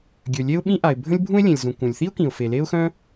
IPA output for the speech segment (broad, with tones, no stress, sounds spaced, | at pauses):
ɡʲ ø˩ lʲ e˥ ʊ̯ ɓ ĩ˥ ʔ a˩ ɪ̯ bʱ ə̃˥ lʲ bʱ ũ˥ ɪ̯ lʲ ẽ˩ lʲ z ũ˩ k ũ˩ lʲ θ i˥ ʊ̯ k ĩ˩ ʊ̯ f e˩ l e˥ ʊ̯ x œ̃˥